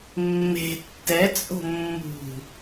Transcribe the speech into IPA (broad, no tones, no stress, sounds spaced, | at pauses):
mː e̤ tː ɛ t͡sʼ o̤ mː ṳ